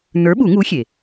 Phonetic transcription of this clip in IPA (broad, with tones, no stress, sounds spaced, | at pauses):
n ə˞˨˥ ɓ u˨˩˦ ŋ u˨˥ xʲ e˩